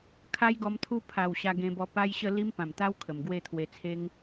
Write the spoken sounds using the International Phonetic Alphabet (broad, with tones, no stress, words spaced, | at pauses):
kʰa˦jɡɔ˧m t̪ʰu˦ pʰa˨˩w ɕa˧ɡẽ˧bɔ˧ pa˦jɕə˥˧ li˦mpã˨˩mt̪a˦w kʰə˨˩mɡwe˥˧t̪ʰwe˧t͡sʰe˦ŋ